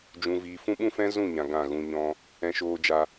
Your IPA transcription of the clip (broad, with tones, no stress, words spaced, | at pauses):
d͡ʒũ˧viː˧ fũ˦ɓũ˦fɛ̃˦ zũ˦˨ ɲã˨ ɡã˦˨ɣũ˧ɲɔ̃˦ | ɛ̃˧ʃoː˧d͡ʒa˧